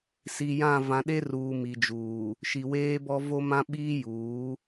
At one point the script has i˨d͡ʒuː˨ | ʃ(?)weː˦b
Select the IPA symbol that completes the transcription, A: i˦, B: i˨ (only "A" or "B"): B